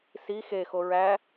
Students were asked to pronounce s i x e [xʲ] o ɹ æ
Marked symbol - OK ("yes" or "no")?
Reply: no